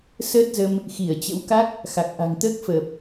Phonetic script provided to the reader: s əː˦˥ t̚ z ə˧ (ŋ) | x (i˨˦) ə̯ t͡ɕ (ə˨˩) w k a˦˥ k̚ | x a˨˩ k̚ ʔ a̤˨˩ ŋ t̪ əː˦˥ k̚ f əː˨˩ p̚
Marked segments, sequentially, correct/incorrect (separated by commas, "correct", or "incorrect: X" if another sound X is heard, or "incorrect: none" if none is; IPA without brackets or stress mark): incorrect: m, incorrect: i˧˩, incorrect: ə̰˧˥